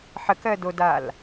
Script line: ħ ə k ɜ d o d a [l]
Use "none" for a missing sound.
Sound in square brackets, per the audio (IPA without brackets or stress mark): l